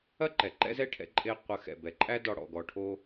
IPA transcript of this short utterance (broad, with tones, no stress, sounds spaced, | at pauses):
ɐ˦ ǃ ɛ˨ ǃ ɛ̰˦ z ɛ˦ ʈʰ ɛ̰˧ ǃʼ e˧ qʷ ɐ˨˦ x ɛ̰˨ b ɛ˨ ǃʼ æ˦ d ɔ˧ ɽ ɔ̰˨ ɡ ɔ˨ ʈʰ o˧